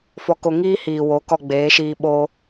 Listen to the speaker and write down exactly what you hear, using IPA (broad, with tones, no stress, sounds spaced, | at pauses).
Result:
f ɔ˧ k o˧ ŋ iː˦ h iː˨ w o˨˦ k ɔ˧ ɡ͡b eː˨˦ ʃ iː˧ ɓ o˧